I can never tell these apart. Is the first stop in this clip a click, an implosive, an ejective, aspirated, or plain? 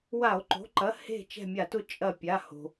click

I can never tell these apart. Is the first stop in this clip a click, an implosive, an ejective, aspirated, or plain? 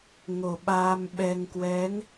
implosive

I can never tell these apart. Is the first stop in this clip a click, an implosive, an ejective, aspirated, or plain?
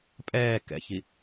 ejective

